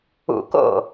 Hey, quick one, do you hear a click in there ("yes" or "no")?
no